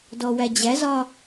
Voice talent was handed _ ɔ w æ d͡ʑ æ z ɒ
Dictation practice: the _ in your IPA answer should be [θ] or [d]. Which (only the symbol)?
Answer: d